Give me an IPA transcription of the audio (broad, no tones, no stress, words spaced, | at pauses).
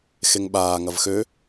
xeŋɓaː ŋɐvxø